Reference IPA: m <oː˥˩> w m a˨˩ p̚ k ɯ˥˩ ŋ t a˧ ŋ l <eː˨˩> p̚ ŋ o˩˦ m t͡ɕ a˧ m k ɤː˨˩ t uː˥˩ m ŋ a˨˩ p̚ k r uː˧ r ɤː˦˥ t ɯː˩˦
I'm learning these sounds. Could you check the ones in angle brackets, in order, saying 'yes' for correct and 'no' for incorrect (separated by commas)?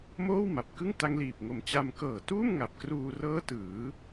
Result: yes, no